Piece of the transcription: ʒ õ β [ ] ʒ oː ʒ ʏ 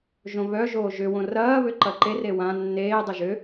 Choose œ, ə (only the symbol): œ